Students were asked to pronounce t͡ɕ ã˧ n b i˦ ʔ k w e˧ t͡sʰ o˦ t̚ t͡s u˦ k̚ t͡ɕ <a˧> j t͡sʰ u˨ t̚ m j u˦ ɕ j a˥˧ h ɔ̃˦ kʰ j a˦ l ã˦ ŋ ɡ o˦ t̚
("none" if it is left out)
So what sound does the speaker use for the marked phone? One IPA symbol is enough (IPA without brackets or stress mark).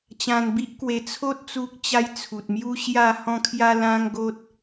a˦